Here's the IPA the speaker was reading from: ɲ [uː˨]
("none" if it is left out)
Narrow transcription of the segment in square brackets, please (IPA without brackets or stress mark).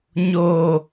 oː˨